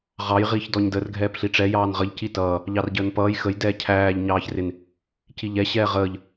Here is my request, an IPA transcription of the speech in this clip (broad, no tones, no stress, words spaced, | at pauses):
ʁɑj ʁiːçdɔɲdər ɡʱɛːpɬiʈ͡ʂɛ jɑːnʁəʎ citʌː | ʎɑrɟəːnpʌːj xəj dɛːcʰæːʎ ɲɑːçrɪn | ciʎɛ ɕɛːʁəːʎ